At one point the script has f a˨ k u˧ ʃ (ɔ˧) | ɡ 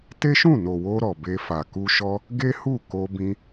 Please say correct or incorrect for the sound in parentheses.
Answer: correct